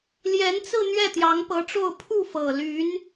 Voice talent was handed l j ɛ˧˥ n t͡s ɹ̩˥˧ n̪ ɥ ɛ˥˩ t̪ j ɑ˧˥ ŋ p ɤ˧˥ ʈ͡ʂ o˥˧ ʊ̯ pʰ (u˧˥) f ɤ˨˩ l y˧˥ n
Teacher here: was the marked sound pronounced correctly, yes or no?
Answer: no